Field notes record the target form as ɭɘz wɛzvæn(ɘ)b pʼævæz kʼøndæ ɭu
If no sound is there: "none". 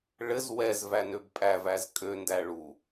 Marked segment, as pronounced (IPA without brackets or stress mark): ø